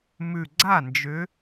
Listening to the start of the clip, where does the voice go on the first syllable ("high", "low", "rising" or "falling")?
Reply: low